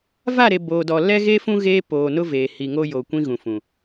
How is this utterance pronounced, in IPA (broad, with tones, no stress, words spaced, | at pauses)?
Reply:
va˦˨ɾe˨ boː˨dɔ˨ lɛ˦ɣe˦fũ˦ ɣeː˦ poː˨nʊ˦veː˨ hi˨ŋo˦jo˨ kʷĩ˦ɣũ˨fũ˨